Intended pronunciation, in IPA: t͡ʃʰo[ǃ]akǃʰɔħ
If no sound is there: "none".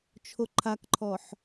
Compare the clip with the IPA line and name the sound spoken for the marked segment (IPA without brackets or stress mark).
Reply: ǃʰ